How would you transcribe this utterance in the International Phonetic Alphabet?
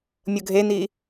mʲ ɤ ɡʱ e n iː

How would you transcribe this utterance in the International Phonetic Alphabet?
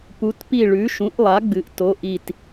p u˩˧ t p i˧˩ ɭ ʉ˩˧ ʃ ũ˩˥ ʔ lˠ a˩˥ ɡ͡b ɨ˩˧ ʔ t o˩˧ ʔ i˧˩ t

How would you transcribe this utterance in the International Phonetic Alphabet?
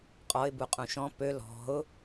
qʼ ɔ ɪ̯ b u qʼ ũ ʃ ɔ̃ p ø l ɔ̤ ʊ̯

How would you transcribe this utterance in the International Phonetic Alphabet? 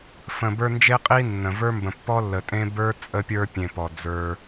f ə̃˨ b ə˞˦ n d͡ʒ e˥ qʼ i˥ nː ə̃˩ v ə˞˥ m b ə̃˨ pː ɔ˥ lː ə˨ tʼ ẽ˥ b ə˞˥ t͡sʼ ə˦ pʲ ə˞˦ pʲ ẽ˨ p ɔ˩ d͡z ə˞˨

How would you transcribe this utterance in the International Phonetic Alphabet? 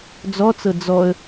d͡z ɔ t͡s ɤ d͡z ɔ ə̯

